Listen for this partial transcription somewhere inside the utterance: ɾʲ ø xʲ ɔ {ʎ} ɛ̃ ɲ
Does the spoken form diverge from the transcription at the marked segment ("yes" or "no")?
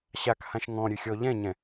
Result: no